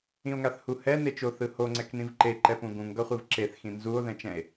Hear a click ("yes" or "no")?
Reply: yes